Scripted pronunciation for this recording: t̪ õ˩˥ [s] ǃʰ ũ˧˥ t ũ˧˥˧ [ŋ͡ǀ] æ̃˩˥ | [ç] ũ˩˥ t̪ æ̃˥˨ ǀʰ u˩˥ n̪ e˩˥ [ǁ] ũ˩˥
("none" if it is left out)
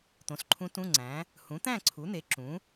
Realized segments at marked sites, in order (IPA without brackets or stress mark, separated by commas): s, ŋ͡ǀ, h, ǁ